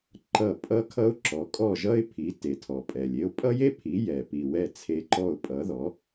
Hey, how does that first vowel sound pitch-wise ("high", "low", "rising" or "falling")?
falling